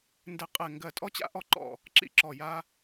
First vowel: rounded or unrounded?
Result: unrounded